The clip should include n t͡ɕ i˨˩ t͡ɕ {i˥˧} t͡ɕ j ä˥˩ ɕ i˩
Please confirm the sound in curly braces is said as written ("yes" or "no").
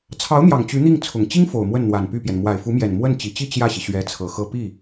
yes